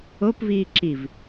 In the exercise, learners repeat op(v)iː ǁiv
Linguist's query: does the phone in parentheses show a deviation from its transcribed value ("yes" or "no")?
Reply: no